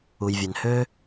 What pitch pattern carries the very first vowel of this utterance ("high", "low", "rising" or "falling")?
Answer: low